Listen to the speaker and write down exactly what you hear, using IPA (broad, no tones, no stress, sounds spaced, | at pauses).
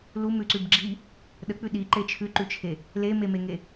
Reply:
l u m ʉ ǀ ʉ b ɡ͡ǁ i | ɗ ə k͡p ʉ ɗ i ǃ e t͡ʃʰ ʉ ǃ ʉ t͡ʃʰ e | l e m e m e ŋ e